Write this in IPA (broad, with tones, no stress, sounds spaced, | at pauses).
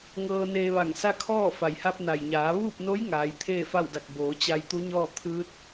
ŋ ɤː˧ n eː˧ ʋ a˧˩ ŋ s a˥˨ kʰ ɔː˥˨ f a˩ j h a˧ p̚ n a˩ j ɲ aː˩˧ ʋ uː˥˨ p̚ n o˧˥ j ŋ aː˩˧ j t̪ʰ eː˥˨ f a˥˨ w d a˧˩ k̚ b oː˩˧ t͡ɕ a˧ j t̪ u˧˥ ɲ ɔː˥˨ t̪ʰ ɯː˧˥ t̚